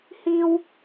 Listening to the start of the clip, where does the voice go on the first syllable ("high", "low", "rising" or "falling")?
high